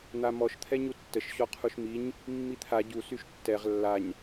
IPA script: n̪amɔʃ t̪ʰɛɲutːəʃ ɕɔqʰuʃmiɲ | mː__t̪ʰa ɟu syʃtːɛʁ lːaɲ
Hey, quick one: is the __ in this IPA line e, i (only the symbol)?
i